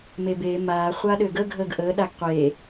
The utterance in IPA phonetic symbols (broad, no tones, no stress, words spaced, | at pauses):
mebeː maː χʷaɗøɡə ɡʱəːɡʔəː ɗaɡqʷeː